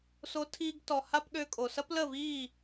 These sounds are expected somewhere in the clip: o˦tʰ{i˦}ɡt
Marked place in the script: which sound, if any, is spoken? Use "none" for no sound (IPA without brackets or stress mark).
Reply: iː˦